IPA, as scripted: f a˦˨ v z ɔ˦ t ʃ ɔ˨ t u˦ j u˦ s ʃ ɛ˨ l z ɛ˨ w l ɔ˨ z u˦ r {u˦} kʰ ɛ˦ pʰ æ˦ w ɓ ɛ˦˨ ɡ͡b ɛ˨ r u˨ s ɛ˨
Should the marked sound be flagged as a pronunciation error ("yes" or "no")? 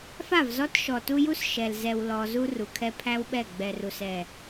yes